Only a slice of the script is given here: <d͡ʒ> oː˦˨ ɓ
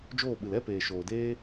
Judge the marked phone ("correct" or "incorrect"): correct